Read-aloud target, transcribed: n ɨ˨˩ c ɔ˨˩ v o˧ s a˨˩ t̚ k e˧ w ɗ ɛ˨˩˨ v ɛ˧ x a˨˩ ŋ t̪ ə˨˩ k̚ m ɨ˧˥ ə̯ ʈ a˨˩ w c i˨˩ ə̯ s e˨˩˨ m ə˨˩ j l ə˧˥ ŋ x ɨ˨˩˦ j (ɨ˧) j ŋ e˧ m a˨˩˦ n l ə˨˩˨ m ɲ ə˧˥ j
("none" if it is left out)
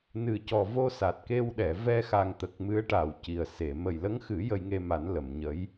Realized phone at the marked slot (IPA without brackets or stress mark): ə˧